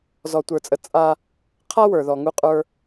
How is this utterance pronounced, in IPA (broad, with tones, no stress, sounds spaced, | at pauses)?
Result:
z ɔ˨ tʷ ə˞˨ t͡sʼ ə˨ t͡sʼ a˦ | qʰ a˦ w ə˞˨ ð ɔ˨ ŋ u˦ qʼ ə˞˦